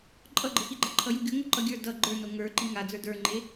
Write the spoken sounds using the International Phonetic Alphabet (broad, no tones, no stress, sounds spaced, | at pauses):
ǃʼ ʌ ɡ͡ǃ ə x i ɡ͡ǃ ʌ ǃʰ ʌ j u ɡʲ o ŋ o ǃ ʌ ɡʲ ə˞ d ʌ ɡ͡ǃ ə˞ n o ŋ ə˞ ǃ i ŋ a d͡z ə˞ d ə˞ ŋ͡ǃ e